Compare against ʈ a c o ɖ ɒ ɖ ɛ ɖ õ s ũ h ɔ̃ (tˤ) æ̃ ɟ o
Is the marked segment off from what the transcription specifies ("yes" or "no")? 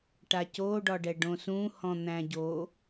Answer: yes